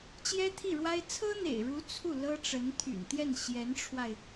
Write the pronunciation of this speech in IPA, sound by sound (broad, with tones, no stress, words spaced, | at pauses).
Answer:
t͡ɕjɛ˥t̪ʰi˥˩ɻwa˥ɪ̯ t͡sʰɤ˥n̪ḛ˨˩ɪ̯ɻu˧˥ t͡sʰu˥˩ lɤ˥ʈ͡ʂə˧˥nt̪ʰy̰˨˩nt̪jɛ˥˩n ɕjɛ˧˥nʈ͡ʂʰwa˧ɪ̯